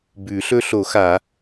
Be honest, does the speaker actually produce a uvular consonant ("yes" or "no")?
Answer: no